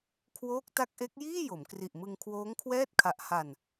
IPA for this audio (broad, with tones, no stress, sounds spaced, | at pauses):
kʰ w oː˦˥ k̚ t a˦˥ k̚ ʔ e˦˥ k̚ j iː˥˩ j o˩˦ m k r i˨˩ ʔ m ɯ˧ ŋ kʰ w oː˦˥ ŋ kʰ w ɛː˥˩ t̚ kʰ a˨˩ ʔ h a˨˩ n